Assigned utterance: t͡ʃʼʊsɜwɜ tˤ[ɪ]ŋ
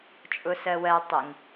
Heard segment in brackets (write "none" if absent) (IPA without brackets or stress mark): ɪ